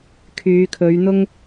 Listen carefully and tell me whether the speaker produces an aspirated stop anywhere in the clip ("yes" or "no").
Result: yes